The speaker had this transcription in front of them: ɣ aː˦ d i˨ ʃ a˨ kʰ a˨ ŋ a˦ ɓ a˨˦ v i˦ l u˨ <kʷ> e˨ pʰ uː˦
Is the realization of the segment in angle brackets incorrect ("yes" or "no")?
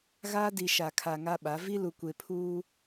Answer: no